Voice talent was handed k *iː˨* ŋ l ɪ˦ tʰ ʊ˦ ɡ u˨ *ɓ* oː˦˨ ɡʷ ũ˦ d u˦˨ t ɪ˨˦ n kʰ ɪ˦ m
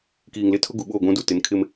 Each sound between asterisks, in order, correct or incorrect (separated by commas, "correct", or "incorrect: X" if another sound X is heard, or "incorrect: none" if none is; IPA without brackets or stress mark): correct, correct